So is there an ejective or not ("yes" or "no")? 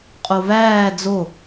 yes